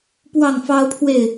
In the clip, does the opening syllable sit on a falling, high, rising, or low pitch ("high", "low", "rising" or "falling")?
falling